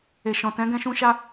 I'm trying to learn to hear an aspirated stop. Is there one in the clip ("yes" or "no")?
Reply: no